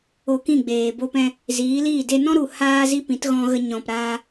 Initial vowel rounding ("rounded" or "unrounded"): rounded